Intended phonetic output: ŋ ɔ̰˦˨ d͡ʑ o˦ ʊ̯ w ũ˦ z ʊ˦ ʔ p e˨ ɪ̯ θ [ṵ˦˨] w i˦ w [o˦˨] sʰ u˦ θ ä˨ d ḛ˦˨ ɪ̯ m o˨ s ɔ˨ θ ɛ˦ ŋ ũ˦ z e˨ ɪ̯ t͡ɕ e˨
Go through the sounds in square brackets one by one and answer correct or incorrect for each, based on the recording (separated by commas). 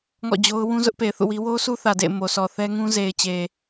correct, incorrect